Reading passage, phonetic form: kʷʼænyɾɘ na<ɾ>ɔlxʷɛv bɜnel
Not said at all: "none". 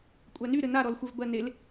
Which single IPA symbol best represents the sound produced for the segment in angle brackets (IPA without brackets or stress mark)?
ɾ